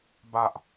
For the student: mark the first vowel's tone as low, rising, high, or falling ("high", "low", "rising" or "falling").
high